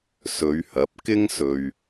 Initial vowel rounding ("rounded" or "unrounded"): rounded